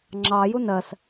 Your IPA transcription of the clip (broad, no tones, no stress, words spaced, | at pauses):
ŋ͡ǁɑju nɜs